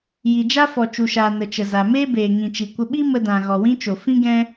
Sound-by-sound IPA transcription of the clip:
ji˨d͡ʒa˦fɔ˨ t͡ʃu˨ʃaː˨ nə˨t͡ʃə˨za˨meː˦ beː˨ŋĩ˨t͡ʃi˨kʷə˧ ɓi˦ mə˧dã˨ ɣɔ˨wĩ˦t͡ʃo˨ fĩ˦ɡɛ̃˦

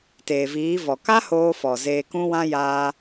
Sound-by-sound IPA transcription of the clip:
teː˨viː˨˦vɔ˨ ka˦hoː˧fɔ˨ zeː˧kũ˦wã˦ jaː˧

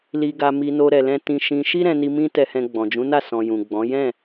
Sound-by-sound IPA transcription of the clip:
li˧ɡa˧mi˧no˧ ɾɛ˨lɛ̃˧tĩ˧ ʃĩ˧ ʃi˦ɾɛ̃˧ni˧ mĩ˦ tɛ˧hɛ̃˧ ɡ͡bɔ̃˨d͡ʒũ˨˦na˦˨ sɔ̃˨ jũ˨ɡ͡bɔ̃˨˦ jɛ̃˦˨

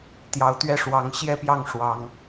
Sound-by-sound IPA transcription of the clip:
t̪jɑ˨˦ʊ̯t̪ɥɛ˦ʂwɑ˨˦ŋ ɕjɛ˦pjɑ˥˨ŋ ʂwɑ˨˦ŋ

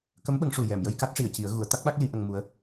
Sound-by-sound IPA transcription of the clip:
kə˧˥mɓə˨˩˦ŋʂu˨˩ jɛ˨˩˨mjə˧j ka˦˥t̚ʂi˨˩˨ə̯ci˨˩˦ə̯ ɣu˨˩˦ə̯t̪a˦˥k̚ɓa˦˥k̚ li˧˥ʔə˧ŋmu˧˥ə̯

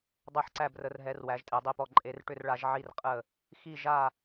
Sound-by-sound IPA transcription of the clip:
dˤɛ˦˨ħǀæ˦˨brə˨˦rɦɛ˨˦r wæ˨˦ʒtʼe˨˦dˤi˦˨pɔ˦˨ ǃʼe˨˦rʈʏ˦˨rɭa˨˦ʒ ʕi˦˨rqʼə˦˨ | xi˦˨ʒa˦˨

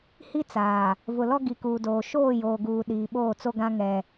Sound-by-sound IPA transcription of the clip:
hi˦t͡saː˨ | vʊ˨lɔ˦ ɡi˨kuː˨doː˨ ʃoː˦˨joː˨ɡuː˨ ɗiː˨ɓoː˦˨ t͡so˦ɡã˦ ŋɛ˦

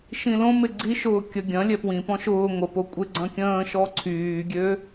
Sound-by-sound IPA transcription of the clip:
ʃĩlõmɪ ɡ͡ǀiʃʊː kʲə ɡʲɐ̃ lʲɛpwĩpɔ̃ ʃʊː ŋʷəpo kʷʼɪ ɡ͡ǀɐ̃kʲə̃ːʃɔ ǀʰyːɡʲø

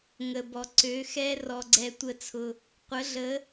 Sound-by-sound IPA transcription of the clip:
ŋə˨bɔ˨ ǀø˨˦xɛ˦ rɔ˧ɡ͡ǀɛ˧tʷə˦˨t͡sʰʊ˧ | qʷə˨˦ɮə˨˦

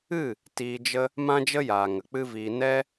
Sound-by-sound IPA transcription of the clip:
ɨ˦˨ | tiː˧d͡ʒə˦ | mã˦d͡ʒə˦jaː˨ ŋə˨k͡pɨ˦viː˧ nɛ˦

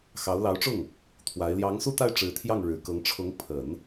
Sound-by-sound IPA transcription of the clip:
xɑ˧˥ʊ̯ lɑ˧˥ʊ̯ʈ͡ʂʊ˥˩ŋ | t̪ʰwa˧˥ɪ̯ ljɑ˧˥ŋsu˥˧t̪a˥˩ɪ̯ ʈ͡ʂɻ̩˧˥t̪ʰjɑ˥˩ŋ ɻɻ̩˨˩kɤ˧˥ŋ ʈ͡ʂʰʊ˧˥ŋ pʰə˨˩˦n

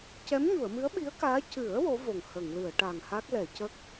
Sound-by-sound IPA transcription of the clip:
cɛ˧˥mɲu˨˩˨ə̯mɨ˧˥ə̯ ɓi˧˥ə̯kaː˧˥ cɨ˨˩˦ə̯ wo˧˥vo˨˩ŋ hə˨˩˨ŋlɨ˨˩˨ə̯ʈa˨˩ŋ ha˦˥k̚lɛ˨˩˨ cə˦˥k̚

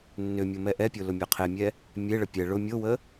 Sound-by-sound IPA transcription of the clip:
nːʏmʲo mɛʔɛpʲo lʊmʲoqʰemʲɛ | mʲeɭə pʲɛ ɭʊ mʲowə

